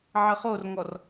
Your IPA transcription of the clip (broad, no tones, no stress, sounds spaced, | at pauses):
ʕ ə χ o r ŋ ɔ r